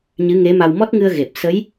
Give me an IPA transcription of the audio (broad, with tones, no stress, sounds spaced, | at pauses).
ɲ ɨ˧˥ ŋ e˧˥ m a˧ w m ɔ˦˥ t̚ ŋ ɨ˧ ə̯ ɣ e˨˩ p̚ s ə˧˥ j